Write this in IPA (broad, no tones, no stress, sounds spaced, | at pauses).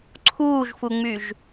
ǀʰ uː ʒ f u ŋ͡m y ʒ